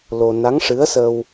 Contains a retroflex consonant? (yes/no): yes